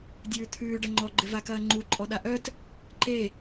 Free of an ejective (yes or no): no